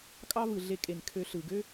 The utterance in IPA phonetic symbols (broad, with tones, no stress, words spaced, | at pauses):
kʼɑ˦vɯ˨ɮe˧kʼe˨n kʰø˧ ɬɯ˨ ɡø˦